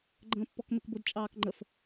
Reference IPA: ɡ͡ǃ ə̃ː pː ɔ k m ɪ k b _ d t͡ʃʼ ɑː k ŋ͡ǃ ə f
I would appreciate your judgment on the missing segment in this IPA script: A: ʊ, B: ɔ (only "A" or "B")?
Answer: A